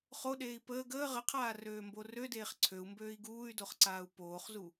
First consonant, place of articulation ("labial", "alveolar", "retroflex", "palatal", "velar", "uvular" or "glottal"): uvular